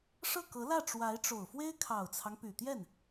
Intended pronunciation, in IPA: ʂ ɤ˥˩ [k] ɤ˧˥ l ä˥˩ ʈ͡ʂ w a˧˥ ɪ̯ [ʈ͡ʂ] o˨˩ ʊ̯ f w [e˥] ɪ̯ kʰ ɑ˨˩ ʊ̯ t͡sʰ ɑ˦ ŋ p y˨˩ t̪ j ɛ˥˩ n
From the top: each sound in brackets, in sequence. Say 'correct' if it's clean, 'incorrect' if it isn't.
correct, correct, correct

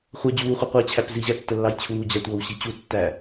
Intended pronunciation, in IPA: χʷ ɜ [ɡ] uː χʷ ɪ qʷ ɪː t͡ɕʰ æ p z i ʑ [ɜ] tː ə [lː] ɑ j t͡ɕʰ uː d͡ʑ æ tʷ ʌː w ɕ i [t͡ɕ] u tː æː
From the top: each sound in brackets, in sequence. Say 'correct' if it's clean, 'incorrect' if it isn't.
incorrect, incorrect, correct, correct

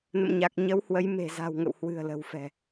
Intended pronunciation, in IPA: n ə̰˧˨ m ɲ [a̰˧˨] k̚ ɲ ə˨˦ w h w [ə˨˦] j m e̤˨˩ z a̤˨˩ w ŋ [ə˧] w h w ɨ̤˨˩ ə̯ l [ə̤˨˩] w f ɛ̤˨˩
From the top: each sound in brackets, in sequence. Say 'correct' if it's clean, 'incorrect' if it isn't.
incorrect, correct, incorrect, correct

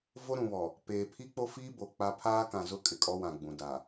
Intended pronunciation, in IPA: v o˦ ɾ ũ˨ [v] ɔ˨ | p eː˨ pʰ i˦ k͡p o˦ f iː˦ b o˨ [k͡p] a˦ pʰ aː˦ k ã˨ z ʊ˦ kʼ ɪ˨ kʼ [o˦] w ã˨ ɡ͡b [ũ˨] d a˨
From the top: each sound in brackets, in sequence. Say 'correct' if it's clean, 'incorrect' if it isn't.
incorrect, correct, incorrect, correct

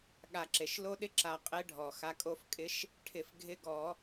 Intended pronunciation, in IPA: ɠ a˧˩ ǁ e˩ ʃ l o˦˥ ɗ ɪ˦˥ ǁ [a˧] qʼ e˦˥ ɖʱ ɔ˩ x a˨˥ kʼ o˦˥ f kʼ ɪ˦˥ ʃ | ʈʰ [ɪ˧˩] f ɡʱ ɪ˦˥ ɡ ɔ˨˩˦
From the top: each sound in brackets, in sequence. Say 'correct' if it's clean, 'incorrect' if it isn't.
correct, correct

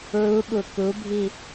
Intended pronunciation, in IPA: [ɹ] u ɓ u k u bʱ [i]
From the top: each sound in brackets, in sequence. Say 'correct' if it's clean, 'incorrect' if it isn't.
correct, correct

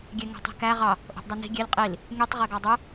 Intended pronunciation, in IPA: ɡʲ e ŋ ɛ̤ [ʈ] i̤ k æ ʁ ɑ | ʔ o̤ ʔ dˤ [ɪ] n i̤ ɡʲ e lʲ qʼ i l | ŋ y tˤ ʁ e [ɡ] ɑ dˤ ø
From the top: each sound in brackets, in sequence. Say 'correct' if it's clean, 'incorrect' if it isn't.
incorrect, incorrect, correct

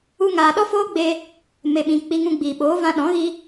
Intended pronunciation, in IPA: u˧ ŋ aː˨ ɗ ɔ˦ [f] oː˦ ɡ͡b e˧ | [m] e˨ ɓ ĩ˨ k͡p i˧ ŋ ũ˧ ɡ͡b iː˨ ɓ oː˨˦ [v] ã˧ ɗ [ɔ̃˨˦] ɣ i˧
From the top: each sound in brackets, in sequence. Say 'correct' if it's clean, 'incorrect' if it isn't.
correct, correct, correct, correct

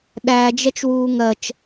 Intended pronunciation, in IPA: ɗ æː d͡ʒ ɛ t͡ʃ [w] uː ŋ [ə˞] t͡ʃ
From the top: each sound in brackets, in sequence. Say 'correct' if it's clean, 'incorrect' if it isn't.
correct, incorrect

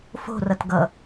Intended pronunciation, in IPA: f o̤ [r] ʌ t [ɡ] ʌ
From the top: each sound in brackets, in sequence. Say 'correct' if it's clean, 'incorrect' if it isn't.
correct, correct

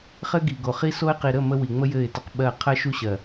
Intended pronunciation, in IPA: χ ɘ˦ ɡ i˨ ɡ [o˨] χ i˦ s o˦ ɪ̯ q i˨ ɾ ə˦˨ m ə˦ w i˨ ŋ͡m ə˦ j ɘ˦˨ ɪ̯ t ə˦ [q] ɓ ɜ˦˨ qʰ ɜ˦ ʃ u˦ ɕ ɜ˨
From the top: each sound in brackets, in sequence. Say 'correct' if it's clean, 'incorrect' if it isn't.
correct, correct

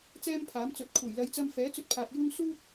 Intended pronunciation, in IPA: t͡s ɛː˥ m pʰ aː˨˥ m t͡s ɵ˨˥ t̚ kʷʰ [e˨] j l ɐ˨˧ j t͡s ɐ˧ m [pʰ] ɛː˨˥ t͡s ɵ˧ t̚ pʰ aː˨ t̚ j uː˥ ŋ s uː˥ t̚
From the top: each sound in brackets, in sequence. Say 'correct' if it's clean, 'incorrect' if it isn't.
incorrect, incorrect

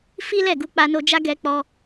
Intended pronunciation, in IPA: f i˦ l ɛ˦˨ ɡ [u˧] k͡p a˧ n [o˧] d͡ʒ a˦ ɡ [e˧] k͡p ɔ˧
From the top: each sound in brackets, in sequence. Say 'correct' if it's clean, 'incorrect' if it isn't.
correct, correct, incorrect

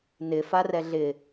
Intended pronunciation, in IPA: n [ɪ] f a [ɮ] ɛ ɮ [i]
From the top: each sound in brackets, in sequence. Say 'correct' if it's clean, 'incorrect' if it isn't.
correct, incorrect, incorrect

